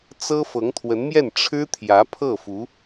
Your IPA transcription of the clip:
t͡s ɤ˥ f ɤ˧˥ ŋ t̪ʰ w ə˧˥ n m j ɛ˥˩ n ʈ͡ʂʰ ɻ̩˥ t̪ʰ j ä˧˥ pʰ ɤ˥˩ f u˧˥

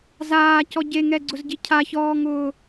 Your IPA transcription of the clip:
z aː c ɔ ɟ e ŋ ɛ ɡ͡ǀ ʊ z ɟ i cʰ a ç ɔː ŋ ʊː

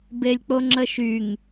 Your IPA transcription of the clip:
b e lʲ k͡p o ŋ͡ǁ ə ʃ y ŋ

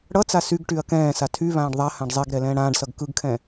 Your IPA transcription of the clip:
ɽ ʌ t͡s a s y ɡ ʈ y ɐ̯ k ɛ̃ː s a tʰ y β ãː ɖ ðˤ a h ã ɖ zˤ e ɡ ɾ ɛ l ɛ̃ː ɽ ãː ɖ s ʌ ɡ k ɯ ɡ kʰ ɛ̃

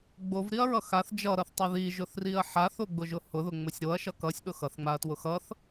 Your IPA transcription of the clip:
ɡ͡b o v ɾ i ɐ̯ ɹ ʌ x a θ d͡ʒ ʌ ɾ ʌ θ tˤ ʌ ð i ʒ ʊ θ r i ɐ̯ ħ a θ o ɡ͡b ʊ ʒ ʊ h ʊ ð ʊ ŋ͡m ʊ sʲ ɾ o ɐ̯ ʃ ʌ k ʌ sʲ ɗ ʊ x ʌ θ ŋ͡m a ɐ̯ t w ʊ x ʌ θ

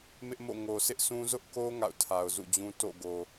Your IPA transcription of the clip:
m ɪ˦ ʔ m o̰˦˨ ŋ o˨ sʰ ɪ˦ ʔ s ũ˦ z ʊ˦ ʔ k o˦ ŋ a̰˦˨ ʊ̯ tʰ a˨ ʊ̯ z ṵ˦˨ d͡ʑ ũ˦ t o̰˦˨ ɡ o˨

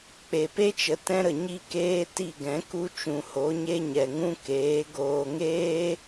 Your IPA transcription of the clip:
k͡p e˨ p e˦ t͡ʃ ə˨ t ɛ̃˦ ɾ ə˨ ɲ i˦ k eː˦ t i˦˨ ɡ ɛ̃˨˦ k u˦ t͡ʃ ũ˨ h o˨˦ ɲ e˦ ɲ ɛ˨ ŋ ũ˦ k eː˨˦ ɡ oː˧ ŋ eː˦

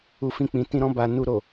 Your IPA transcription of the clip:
u˧ f ĩ˧ k͡p ĩ˨ t ĩ˧ ɾ ɔ̃˧ b a˨ n u˨ ɾ o˨

